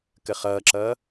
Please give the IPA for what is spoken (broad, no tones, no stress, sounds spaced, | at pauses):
k ə χ ʌː ǁ ʌː